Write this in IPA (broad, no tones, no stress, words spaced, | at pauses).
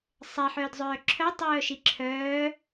sˤɛħœːdzˤœː ǁʰœtˤœːʃi ǁʰœː